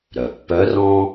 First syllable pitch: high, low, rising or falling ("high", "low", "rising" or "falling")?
low